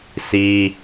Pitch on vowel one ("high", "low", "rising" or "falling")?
high